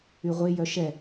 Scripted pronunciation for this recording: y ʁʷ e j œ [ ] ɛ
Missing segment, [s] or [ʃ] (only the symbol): ʃ